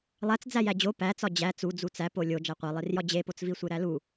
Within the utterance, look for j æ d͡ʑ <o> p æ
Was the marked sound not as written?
no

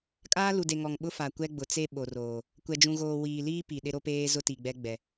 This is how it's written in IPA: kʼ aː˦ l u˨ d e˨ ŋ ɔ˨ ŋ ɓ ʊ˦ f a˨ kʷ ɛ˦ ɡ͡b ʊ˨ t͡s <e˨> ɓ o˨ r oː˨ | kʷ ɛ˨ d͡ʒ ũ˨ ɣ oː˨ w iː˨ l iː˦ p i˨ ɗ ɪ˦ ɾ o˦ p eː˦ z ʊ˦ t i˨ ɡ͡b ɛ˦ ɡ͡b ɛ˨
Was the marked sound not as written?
yes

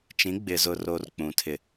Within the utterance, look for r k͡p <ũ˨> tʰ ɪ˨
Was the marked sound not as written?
no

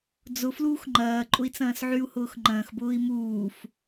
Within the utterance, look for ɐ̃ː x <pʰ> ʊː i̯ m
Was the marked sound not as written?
yes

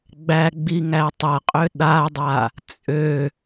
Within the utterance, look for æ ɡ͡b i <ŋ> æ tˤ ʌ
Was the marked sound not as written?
no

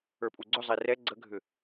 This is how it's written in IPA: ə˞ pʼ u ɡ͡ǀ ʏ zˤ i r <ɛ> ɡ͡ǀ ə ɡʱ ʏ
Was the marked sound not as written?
no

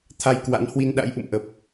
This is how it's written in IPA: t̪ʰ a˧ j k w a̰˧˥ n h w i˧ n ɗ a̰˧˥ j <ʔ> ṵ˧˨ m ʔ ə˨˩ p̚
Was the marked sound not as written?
no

